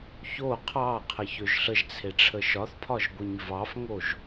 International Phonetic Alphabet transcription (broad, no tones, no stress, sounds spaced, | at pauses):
ç o qʰ ɑ qʰ ə ç ø ʒ ɬ ə ʒ t͡sʰ e ʈ͡ʂʰ ə ʃ ɒ θ pʰ ɒ ʒ ɡʷ e ɲ v ɑ f ŋ o ʒ